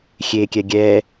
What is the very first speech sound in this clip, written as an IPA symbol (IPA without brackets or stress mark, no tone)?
xʲ